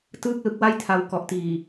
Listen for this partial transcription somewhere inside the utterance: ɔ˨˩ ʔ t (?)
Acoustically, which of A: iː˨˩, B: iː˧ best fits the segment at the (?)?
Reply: A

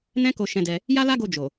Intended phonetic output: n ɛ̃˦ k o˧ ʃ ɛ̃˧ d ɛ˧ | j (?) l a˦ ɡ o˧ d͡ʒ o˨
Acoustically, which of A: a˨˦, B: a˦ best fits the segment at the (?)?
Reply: B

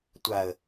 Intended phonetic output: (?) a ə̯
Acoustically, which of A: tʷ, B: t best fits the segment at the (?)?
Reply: A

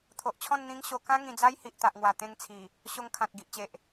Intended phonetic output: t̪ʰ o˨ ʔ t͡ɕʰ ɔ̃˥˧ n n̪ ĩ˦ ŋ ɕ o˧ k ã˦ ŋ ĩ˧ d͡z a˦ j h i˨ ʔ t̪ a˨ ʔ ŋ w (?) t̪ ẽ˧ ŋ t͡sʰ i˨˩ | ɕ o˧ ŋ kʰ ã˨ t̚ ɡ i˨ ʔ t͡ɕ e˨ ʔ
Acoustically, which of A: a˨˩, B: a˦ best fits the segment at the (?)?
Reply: A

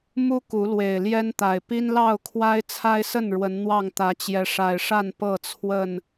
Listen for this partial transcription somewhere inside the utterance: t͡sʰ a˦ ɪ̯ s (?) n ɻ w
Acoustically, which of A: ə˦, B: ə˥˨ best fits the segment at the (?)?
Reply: B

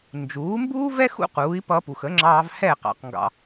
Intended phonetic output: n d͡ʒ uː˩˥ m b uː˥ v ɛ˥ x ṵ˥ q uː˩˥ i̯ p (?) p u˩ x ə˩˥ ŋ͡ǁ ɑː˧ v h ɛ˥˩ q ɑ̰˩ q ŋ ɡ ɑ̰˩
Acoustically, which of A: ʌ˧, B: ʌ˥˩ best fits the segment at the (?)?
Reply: A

